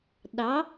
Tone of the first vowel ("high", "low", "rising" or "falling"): rising